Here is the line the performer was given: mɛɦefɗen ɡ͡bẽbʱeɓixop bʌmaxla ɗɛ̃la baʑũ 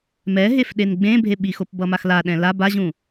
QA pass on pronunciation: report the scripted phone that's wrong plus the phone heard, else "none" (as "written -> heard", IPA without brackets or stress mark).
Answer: none